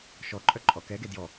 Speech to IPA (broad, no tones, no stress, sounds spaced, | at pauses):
ʃ ɔ ǃʼ œ ǃʼ ɔ k ɛ ɡ e d j ɔ